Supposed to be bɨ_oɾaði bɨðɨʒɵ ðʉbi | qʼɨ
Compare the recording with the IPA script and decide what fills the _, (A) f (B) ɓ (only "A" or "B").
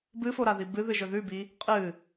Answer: A